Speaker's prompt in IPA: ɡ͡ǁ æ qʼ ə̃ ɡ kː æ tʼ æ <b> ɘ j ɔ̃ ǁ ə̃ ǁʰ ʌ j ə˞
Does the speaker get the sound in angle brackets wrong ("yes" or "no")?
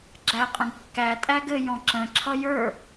yes